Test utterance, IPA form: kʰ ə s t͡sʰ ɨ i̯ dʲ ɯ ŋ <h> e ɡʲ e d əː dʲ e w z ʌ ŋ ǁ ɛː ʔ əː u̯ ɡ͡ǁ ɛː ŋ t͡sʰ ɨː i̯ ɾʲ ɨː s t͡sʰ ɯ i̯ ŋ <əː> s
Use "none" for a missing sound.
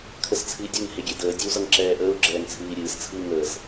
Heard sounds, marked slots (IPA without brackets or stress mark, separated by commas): h, əː